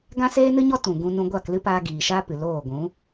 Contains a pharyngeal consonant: no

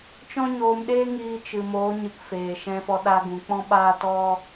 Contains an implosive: yes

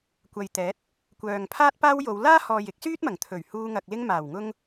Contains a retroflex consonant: no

